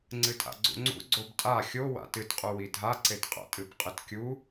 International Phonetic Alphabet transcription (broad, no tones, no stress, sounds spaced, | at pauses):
ŋ͡ǀ ɨ tʼ a̰ ɡ͡ǀ ṵ ŋ͡ǀ ṵ ɡ͡ǀ o b tʼ a xʲ o w a̰ t ɨ t qʼ u w i dʱ a ǀ e t qʼ a̰ tʼ ɨ b qʼ ɨ t kʲ u